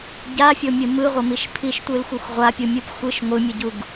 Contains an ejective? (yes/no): no